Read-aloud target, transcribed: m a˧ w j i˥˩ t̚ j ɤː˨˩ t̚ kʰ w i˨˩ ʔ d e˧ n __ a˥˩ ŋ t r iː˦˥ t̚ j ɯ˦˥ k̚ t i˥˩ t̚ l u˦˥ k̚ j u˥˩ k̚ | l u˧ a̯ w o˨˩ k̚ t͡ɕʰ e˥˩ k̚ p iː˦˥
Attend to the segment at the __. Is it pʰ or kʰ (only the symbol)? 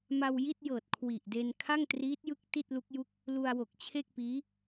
kʰ